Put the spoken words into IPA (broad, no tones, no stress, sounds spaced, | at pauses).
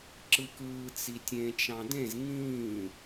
ǁ ɯ k ɯː t͡s i tʲ ẽ t͡ʃ ɑ̃ d ẽ z ŋ ĩː